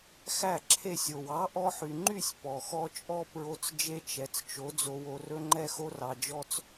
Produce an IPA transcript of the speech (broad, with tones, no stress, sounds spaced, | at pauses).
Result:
x æ˦˨ ǁʰ e˦˨ sʲ o˨ w ɑ˨˦ ʔ ɔ˧ ħ y˨ ŋ͡ǃ y˦˨ sʲ p ɔ˨ x ɔ˦ t͡ʃʼ ɔ˦ p ɹ o˧ t͡s d͡ʒ e˦ t͡ʃ ɛ˨ t͡s t͡ʃ o˨˦ d͡z o˧ w o˧ r ɵ˦ ŋ͡ǃ ɛ˦ x o˦ r ɑ˧ d͡ʒ ɔ˦ t͡s